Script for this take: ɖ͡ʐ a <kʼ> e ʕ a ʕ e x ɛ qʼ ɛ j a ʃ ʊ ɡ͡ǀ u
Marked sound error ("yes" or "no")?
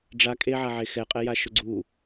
no